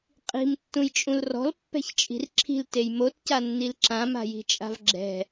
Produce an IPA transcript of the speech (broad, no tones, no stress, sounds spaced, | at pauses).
qʼ i̤ m tː ũ j t͡ʃʼ ũ l r ɔ̤ l pː ɛ̤ ç t͡ʃʼ i̤ r ǁʰ i̤ l t e j m o t c a nː i l ǁ ã m a̤ j i̤ t͡ʃʼ a̤ v ɡ͡ǁ ɛ̤